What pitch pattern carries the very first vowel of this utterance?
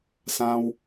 high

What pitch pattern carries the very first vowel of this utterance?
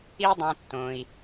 high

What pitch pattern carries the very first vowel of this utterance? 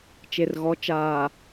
low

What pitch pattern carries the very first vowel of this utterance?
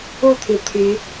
falling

